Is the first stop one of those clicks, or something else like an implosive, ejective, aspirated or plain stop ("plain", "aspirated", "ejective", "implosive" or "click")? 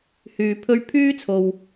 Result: aspirated